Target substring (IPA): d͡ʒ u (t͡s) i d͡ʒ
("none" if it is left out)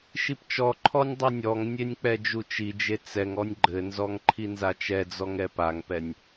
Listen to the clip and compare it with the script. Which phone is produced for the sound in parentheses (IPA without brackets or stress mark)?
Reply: t͡ʃ